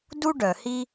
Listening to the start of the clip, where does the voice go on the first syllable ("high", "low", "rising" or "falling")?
high